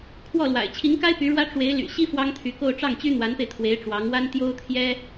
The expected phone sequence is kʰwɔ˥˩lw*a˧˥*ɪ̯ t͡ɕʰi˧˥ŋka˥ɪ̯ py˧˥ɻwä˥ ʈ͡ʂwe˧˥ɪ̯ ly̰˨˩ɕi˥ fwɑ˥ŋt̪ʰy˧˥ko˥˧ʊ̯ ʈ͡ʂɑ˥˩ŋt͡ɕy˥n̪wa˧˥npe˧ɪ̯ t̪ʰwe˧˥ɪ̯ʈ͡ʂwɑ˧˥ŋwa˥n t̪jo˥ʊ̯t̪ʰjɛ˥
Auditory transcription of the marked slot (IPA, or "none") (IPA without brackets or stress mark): a̰˨˩